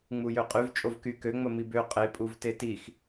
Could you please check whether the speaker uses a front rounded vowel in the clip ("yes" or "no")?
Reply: yes